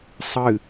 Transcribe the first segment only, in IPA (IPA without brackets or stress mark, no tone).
sˤ